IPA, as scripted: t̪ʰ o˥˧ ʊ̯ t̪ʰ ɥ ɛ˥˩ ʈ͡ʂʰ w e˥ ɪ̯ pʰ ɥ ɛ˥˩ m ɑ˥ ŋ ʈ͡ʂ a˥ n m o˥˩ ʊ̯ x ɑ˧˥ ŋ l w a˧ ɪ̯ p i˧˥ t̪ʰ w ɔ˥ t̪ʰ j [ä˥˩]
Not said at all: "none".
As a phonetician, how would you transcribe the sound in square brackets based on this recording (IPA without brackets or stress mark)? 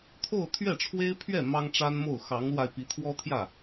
ä˥˩